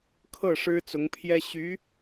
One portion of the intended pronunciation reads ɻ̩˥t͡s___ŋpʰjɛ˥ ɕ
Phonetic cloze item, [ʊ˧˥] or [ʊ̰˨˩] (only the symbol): ʊ˧˥